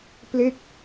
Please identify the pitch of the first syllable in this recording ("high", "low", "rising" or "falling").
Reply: falling